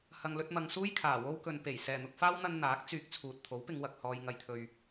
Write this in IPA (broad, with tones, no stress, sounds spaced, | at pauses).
h ɐ˨ ŋ l ɵ˧ t̚ m ɐ˨ ŋ s uː˥ j kʰ aː˨˩ w o˧ w k ɵ˨ n p e˨˩ j s ɛː˨˩ n̪ ʊ˨ k̚ f aː˥ w n̪ ɐ˧ n n̪ aː˨˥ k̚ t͡s yː˧ k̚ t͡sʰ uː˨ t̚ t̪ʰ o˨˥ w p ɪ˨˧ ŋ w ɐ˨ k̚ h ɔː˨ j ŋ ɐ˨ j t̪ʰ ɵ˨ ɥ